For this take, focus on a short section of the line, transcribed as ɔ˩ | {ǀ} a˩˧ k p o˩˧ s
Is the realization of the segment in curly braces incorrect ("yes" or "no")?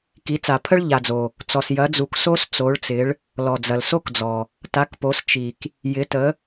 yes